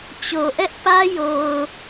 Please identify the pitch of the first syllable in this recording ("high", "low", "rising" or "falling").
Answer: low